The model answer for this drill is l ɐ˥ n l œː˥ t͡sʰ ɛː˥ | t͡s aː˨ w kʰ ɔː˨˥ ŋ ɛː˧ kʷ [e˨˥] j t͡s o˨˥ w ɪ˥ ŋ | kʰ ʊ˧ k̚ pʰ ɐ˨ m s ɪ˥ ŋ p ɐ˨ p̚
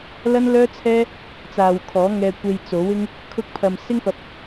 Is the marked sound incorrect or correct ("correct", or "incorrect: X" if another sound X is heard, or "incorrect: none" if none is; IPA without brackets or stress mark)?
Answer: incorrect: e˧